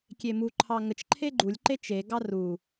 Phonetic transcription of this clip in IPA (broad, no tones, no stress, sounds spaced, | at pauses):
kʲ e m u ǃʰ ɑ ŋ ə t͡ʃ ǃʰ e ɡ͡ǃ u lʲ ǃ e t͡ʃ e ɡ ɑ r u